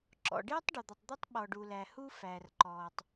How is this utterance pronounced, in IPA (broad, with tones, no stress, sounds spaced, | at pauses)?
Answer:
ǁ ɔ̰˨ ɖ ɪː˦ tˤ ɖ ɔ˨ d̪ ʌ˨ tˤ d̪ i˦ tˤ ɓ ɔ˨ ɖ u˨ l æ˨ h u˦ f æː˨ r ǃ ɔː˨ tˤ